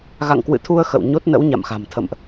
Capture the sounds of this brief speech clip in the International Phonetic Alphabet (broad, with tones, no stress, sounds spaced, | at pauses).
ɣ a̰˧˨ ŋ k w ɨ̰˧˨ t̪ʰ u˧ ə̯ x ə̰˧˨ w ɲ o˦˥ t̚ n ə̰˧˥ w ɲ a̰˧˨ m x a̤˨˩ m t̪ʰ ə̰˧˨ m ʔ